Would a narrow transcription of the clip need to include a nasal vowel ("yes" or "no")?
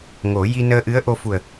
no